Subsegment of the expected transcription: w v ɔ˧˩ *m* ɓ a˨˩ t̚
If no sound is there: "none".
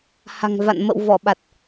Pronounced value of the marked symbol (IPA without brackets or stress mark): none